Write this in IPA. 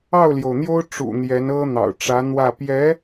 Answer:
ɑ˥˩ʊ̯ljo˩ʊ̯n̪jo˥ʊ̯ ʈ͡ʂṵ˨˩n̪jɛ˧˥nɤ˥ n̪ɑ̰˨˩ʊ̯ʈ͡ʂä˧˥n̪wä˥˩ pjɛ˧˥

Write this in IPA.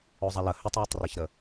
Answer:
ozˤɐlə hʏtˤwøtˤreçɾə

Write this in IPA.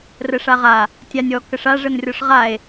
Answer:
rəʂaʁa | tʲanʲ ɔ kəʂa ʐənrʲɔʂʁae̯

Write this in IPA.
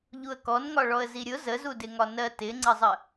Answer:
ʎuə̯kɔnŋɒɭɔə̯ ziɾʲʊ zəzudɪŋɒ nɜtɪŋ͡ǀəzˤə

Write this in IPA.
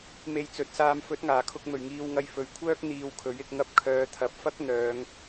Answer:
me˧jt͡sɵ˨˥t̚saː˧m fɵ˨˥t̚ŋaː˨˩kʰʊ˧k̚mɵ˨˩ɥ ŋiː˧wŋɐ˧j fɵ˨˥ɥkʷʰœː˥k̚ n̪iː˧wkʰɵ˨˥ɥɪ˧k̚ŋɐ˥p̚ kʰœː˨˧t̪ʰɐ˨˥p̚fɐ˥k̚ n̪œː˨˧ŋ

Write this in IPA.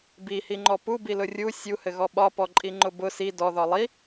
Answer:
bihiŋ͡ǃɔ pubilʊ rʲu sʲuhɘɣɔ ɓɒpɔǃʼiŋ͡ǃʊ bʊ si dɔðɒ lˠi

